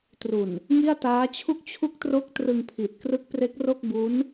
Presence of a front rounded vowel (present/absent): absent